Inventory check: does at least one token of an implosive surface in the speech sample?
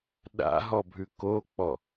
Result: yes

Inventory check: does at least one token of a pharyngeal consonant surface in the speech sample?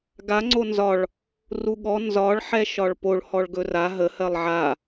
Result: yes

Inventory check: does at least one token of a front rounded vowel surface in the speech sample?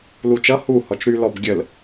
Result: yes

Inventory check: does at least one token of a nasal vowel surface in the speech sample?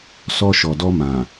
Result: yes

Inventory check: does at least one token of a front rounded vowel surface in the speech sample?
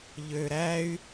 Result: yes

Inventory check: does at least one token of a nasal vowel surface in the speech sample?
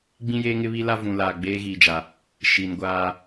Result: yes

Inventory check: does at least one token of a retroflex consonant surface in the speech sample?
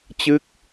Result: no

